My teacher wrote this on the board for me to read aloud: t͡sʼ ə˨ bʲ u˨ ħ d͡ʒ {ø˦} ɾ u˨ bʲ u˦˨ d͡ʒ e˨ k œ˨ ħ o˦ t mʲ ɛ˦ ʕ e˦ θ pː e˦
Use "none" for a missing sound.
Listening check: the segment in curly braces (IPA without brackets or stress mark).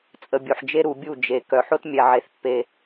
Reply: e˦